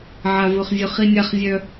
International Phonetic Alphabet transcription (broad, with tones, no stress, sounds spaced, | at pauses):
ʕ a˦ v ɵ˦ χ zʲ ɵ˦ χ i˦ nʲ a˦ χ zʲ œ˦